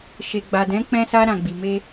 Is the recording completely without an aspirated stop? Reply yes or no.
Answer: yes